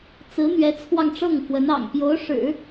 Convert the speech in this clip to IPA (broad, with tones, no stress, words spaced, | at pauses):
t͡sɹ̩˧˥n̪ɥɛ˧˥t͡sʰwɑ˧ŋ ʈ͡ʂɤ˥˩ŋfwə˧˥nɑ̰˨˩ŋ pjo˧˥ʊ̯ʂɻ̩˨˩˦